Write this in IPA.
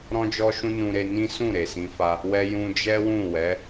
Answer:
ɾɔ̃˧d͡ʒɔ˧ʃũ˧ nũ˧ɾe˧nĩ˦ sũ˦˨ɾe˨sĩ˧fa˧ | wɛ˧ jũ˧d͡ʒɛ˦wũ˦˨ wɛ˨˦

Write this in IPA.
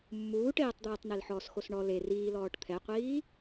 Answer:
mːuːʈeːtˤd̪eːtˤnel ħɔːsxosɳɔ le riːlɔːʈ t̪ʰɛqʷiː

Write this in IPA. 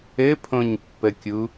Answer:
ɘpʰõɲpːəkʲu

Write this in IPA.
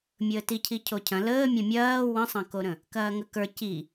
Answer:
mʲəːticʰi cʰocʰɐ̃ ləːmʲɐ̃ mʲɐː wə̃sˤɐ̃koɾə̃ | kɐːŋəkə˞ ci

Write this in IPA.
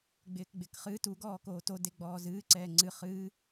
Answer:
ɡ͡bɪːkɡ͡bɪːkχɨ tuɡɔːkoː todeɡ͡bɔː zɨːǀɛː ŋ͡ǀɨ χɨː

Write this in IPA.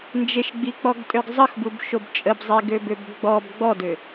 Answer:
nd͡ʒeʃɡ͡bik͡pɔɡtʼøɡ zˤəxbubʃob t͡ʃʼəbzˤeɡøbøb ɡ͡bɔb ɡ͡bɔdø

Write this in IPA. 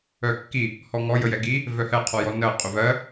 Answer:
œkːi | hɔŋɔ jəjɛɡi | vœhɛ qʰɔjɔnɜ qʼøvɜ

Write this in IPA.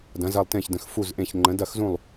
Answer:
dɐ̃˧˥zɐ˥˧lˠtẽ˥˧çdə̃˧˥x fu˥˧zʔẽ˥˧ç ŋ͡ǃə̃˧˥dɐ˥˧xzũ˥˧lˠ

